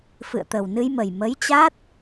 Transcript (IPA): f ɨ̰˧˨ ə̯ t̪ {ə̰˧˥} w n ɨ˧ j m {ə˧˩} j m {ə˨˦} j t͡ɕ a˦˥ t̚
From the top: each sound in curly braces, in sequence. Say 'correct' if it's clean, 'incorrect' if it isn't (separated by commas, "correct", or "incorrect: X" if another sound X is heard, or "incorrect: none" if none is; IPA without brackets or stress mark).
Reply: incorrect: ə˨˩, incorrect: ə˨˩, correct